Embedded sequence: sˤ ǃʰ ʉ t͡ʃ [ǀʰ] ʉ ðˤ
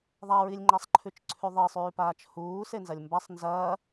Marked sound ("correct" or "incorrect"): correct